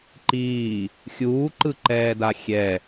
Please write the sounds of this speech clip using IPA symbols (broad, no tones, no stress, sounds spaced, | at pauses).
ǃ iː | xʲ uː ǃ ɯ ǃ ɛː d a xʲ ɛ